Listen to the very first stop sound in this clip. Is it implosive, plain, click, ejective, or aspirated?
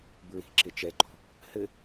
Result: plain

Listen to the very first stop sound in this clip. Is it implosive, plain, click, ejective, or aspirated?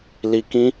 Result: plain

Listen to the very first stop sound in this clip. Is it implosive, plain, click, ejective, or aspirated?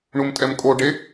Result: ejective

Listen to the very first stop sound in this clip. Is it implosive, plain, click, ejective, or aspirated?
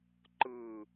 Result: click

